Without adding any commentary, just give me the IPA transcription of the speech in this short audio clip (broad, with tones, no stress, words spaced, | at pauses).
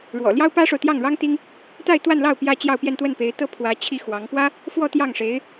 ɻwɔ̰˨˩ljɑ˥ʊ̯pä˥ʂo˨ʊ̯ t̪jɑ˥˩ŋɻɑ˥ŋ t̪i˥ŋ | t̪a˥˧ɪ̯t̪wa˥˧nlɑ˥˩ʊ̯ pjä˥ t͡ɕjɑ˥˧ʊ̯pjɛ˥˧nt̪wə˥˩n pe˧˥ɪ̯t̪ɤ˥ pʰwä˧˥t͡ɕʰi˥˩ xwɑ˧˥ŋ pwä˥ | fwɔ˥˧t̪jɑ˥˩ŋʂe˧˥ɪ̯